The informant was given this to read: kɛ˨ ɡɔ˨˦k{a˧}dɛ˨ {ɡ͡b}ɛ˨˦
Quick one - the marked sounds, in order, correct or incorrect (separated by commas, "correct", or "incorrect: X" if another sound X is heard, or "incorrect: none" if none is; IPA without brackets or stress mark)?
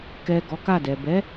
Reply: incorrect: a˦˨, incorrect: b